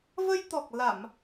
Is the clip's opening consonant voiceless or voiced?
voiced